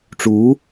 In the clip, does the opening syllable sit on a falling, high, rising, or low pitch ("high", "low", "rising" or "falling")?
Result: rising